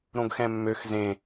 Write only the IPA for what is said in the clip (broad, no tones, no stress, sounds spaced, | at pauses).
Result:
ɾ õ ɡ x ɛ̃ mː ø x z ẽ